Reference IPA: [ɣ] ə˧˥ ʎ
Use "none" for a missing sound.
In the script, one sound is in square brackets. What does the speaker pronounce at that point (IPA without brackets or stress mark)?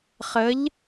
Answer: χ